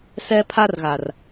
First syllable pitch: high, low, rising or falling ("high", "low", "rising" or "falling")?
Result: high